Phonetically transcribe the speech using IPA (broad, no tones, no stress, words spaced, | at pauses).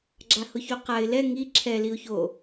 ɡ͡ǁahʊçoqaɪ̯ lɛ ŋi ǁʰɛ liʊ̯ço